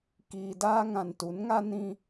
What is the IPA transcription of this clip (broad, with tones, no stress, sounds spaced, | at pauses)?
k iː˨ d aː˦ ŋ ã˨ n t u˨˦ n ŋ a˦ n ĩ˦